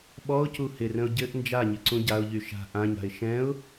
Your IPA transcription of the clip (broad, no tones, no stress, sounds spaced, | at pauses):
ɓ ɔ ʊ̯ c u h ɪ r ə̃ ʊ̯ ɟ ɘ ʔ n d͡ʒ a ɲ ɪ ǀ ũ ɟ a ʊ̯ ʎ y ʃ a̤ ʔ ã ɲ a̤ ɪ̯ ʃ ɛ̃ ʊ̯